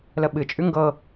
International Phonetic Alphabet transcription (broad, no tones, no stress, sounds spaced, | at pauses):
l ə ɓ ɨ t͡ʃʼ ʉ ŋ ɡ ɤ